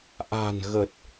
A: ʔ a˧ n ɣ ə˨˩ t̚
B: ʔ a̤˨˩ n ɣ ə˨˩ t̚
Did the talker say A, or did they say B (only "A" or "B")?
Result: B